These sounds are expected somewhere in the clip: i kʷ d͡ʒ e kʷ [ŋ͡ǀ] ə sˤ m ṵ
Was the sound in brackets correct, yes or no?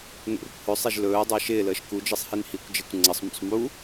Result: yes